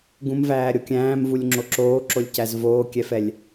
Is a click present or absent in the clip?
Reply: present